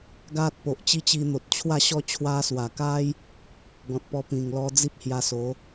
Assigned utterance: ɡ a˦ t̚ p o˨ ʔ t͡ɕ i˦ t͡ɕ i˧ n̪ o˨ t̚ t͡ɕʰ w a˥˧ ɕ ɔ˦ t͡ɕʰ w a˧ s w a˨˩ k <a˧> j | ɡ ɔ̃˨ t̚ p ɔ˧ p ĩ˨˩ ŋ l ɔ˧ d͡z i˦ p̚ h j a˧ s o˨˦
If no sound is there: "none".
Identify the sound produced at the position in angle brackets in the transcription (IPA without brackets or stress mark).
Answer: a˦